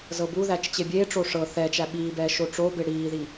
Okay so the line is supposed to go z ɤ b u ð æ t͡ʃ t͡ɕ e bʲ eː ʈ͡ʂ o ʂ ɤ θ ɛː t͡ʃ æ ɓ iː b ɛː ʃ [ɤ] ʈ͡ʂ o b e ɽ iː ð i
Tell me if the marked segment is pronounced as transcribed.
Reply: no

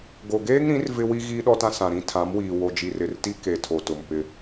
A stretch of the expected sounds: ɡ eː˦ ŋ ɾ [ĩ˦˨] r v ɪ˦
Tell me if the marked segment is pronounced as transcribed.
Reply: no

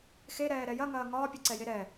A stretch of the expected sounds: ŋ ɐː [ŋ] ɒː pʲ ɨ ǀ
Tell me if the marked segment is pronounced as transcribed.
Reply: yes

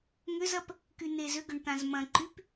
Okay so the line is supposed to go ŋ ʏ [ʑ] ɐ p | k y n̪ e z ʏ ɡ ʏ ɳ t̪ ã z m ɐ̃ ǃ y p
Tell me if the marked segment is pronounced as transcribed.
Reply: no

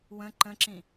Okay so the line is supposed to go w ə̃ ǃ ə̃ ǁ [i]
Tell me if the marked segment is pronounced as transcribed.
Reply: no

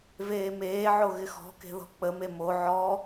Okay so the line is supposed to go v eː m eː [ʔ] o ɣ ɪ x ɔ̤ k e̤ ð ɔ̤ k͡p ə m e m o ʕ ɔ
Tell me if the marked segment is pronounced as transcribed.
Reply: no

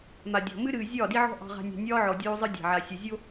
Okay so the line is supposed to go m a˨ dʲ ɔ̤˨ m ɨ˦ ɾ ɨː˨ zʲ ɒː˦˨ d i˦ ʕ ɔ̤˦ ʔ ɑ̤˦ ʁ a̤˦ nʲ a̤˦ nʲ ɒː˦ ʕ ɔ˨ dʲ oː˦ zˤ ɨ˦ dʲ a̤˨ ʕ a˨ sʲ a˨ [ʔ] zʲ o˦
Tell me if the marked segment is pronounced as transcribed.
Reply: no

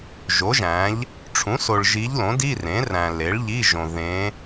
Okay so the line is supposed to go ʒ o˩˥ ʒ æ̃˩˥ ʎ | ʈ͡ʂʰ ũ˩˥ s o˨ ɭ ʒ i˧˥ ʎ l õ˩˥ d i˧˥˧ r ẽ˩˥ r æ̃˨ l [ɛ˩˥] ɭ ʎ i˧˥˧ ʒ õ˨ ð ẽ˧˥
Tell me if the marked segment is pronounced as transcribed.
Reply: no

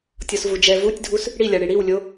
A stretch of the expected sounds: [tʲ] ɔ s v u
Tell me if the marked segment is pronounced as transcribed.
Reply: yes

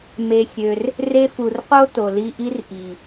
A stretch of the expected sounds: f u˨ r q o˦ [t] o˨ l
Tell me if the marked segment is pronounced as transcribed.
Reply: yes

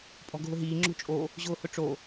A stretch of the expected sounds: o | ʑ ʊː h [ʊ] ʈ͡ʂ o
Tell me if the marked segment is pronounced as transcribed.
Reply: yes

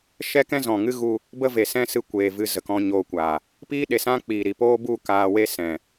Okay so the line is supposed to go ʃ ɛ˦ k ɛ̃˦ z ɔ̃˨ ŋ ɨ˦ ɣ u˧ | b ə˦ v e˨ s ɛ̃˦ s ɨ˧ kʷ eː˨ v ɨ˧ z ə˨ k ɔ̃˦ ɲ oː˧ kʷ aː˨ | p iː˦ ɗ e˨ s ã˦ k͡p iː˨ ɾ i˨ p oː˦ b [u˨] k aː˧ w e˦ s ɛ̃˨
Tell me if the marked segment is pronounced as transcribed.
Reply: no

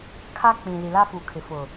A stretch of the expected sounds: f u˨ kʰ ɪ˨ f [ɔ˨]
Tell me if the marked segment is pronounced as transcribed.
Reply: no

